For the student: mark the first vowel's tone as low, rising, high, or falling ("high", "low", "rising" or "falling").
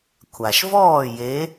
low